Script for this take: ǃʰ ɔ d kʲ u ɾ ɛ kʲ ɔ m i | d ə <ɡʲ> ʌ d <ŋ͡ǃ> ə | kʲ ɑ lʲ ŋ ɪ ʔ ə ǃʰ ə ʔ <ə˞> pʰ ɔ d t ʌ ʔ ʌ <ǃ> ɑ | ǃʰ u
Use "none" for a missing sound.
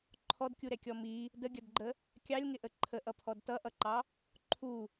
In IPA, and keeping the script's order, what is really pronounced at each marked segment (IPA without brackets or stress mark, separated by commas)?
ɡʲ, ɡ͡ǃ, ʌ, ǃ